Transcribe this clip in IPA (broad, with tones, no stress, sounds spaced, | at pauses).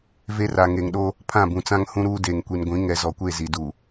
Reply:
v e˦ r a˨ ŋ e˨ ŋ ɗ oː˦ | pʰ ã˦˨ b ũ˨ t͡s ã˦ ŋ h ũ˦ ɾ uː˦ d eː˨ ŋ kʷ i˨ n ɡʷ ĩ˨˦ ŋ ɛ˨ z ɔ˨ kʷ e˦˨ z i˨ d uː˨